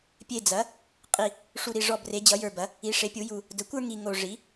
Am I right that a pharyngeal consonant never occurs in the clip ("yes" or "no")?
yes